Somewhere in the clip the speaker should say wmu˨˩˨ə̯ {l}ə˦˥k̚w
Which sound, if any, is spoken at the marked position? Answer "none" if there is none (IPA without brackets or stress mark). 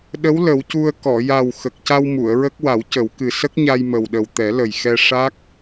ɹ